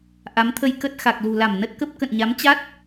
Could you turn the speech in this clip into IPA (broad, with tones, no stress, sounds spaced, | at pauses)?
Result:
ʔ a˨˦ m t̪ʰ ə˧ j k ə˦˥ t̚ x a˨˩ k̚ l ṳ˨˩ l a˧˩ m n ə˦˥ t̚ k ə˦˥ p̚ k ə̰˧˨ n ɲ a˨˦ m t͡ɕ a˦˥ t̚